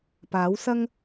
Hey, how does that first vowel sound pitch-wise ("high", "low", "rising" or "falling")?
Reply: rising